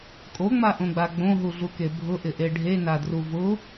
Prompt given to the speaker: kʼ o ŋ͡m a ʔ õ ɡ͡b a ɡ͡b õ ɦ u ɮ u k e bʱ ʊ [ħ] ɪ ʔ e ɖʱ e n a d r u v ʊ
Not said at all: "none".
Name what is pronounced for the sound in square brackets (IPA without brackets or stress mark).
ʔ